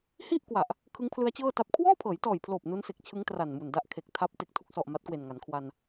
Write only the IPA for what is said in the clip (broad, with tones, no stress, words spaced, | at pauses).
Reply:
hi˥˩ʔkwa˨˩ʔ | kʰɯ˦˥ŋpʰlɯ˦˥a̯t͡ɕɤː˥˩ta˦˥p̚ kʰwɔː˥˩pʰɤː˩˦jtɔː˨˩jpʰloː˨˩p̚ nu˦˥nse˨˩k̚t͡ɕʰɯ˦˥ŋ tra˨˩nmu˨˩nda˦˥ʔ kʰe˨˩k̚ tʰa˦˥p̚ te˨˩k̚tʰu˥˩k̚sɔ˨˩ʔ ma˦˥t̚kwe˨˩nŋa˩˦nkʰwa˧n